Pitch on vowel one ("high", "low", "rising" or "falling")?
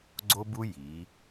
high